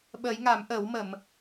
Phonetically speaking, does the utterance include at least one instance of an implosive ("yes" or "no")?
yes